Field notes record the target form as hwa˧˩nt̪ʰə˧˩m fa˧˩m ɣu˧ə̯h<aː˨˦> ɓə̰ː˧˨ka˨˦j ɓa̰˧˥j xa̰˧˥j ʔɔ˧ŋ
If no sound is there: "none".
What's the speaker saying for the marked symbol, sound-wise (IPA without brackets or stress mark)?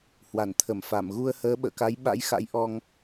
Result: əː˨˦